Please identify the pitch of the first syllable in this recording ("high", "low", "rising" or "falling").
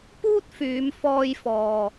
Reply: high